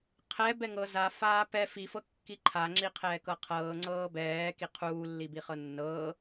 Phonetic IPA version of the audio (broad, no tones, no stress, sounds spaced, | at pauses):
qʰ ɛ b ɛ ŋ ɤ z a f aː p ɛ f i f ɤ kː i ǃʰ a ŋ͡ǁ i qʰ ɛː k ɤ qʰ ɤː ŋ͡ǀ ɤː b ɛː k i qʰ uː lː i b i χ ɤ nː ɤː